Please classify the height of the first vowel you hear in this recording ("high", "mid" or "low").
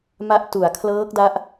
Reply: low